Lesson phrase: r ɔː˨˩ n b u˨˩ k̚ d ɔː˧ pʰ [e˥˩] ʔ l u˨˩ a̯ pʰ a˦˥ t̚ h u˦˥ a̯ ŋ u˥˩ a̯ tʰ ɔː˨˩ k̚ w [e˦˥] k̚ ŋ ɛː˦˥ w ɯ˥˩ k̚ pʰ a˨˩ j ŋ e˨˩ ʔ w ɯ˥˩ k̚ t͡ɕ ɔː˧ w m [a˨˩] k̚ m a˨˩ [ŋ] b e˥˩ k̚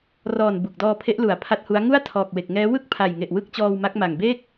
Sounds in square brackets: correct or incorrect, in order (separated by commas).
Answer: incorrect, incorrect, incorrect, correct